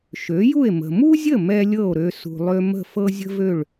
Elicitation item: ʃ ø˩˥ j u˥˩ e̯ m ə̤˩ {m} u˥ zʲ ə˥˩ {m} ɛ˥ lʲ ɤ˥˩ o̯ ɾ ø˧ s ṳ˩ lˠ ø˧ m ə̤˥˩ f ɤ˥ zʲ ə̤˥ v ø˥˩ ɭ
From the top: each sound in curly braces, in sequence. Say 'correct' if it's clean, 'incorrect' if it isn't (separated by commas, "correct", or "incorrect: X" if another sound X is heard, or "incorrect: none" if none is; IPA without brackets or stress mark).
correct, correct